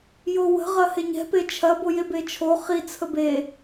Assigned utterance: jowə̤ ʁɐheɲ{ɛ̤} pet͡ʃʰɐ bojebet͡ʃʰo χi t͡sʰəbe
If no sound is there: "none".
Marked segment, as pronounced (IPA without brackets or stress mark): ɛ̤